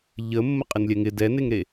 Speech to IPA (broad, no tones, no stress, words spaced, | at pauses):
ʎə mːəqʼɪnlʲɛŋɪ dɛneŋɾe